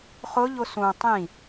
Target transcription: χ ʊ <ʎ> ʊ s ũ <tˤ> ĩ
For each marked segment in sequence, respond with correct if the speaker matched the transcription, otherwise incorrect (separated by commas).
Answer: correct, correct